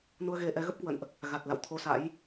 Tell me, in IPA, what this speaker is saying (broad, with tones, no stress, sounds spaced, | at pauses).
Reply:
n u˧ ə̯ ɣ e˧ ʔ ɛ˨˦ ɣ ə˦˥ p̚ k w ə̰˧˨ n ʔ | ɣ a˨˩ t̚ l a̰˧˨ w t̪ʰ o˧ s a̰˧˥ j